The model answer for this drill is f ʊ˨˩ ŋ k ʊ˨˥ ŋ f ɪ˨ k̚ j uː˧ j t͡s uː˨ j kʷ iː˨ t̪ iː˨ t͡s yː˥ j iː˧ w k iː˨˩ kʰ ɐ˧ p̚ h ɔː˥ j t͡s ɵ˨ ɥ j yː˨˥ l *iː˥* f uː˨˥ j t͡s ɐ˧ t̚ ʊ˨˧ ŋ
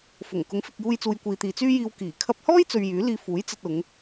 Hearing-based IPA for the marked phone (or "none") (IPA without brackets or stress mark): iː˧